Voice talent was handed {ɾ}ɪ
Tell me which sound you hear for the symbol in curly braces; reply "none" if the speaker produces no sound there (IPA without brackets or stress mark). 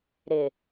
ɾ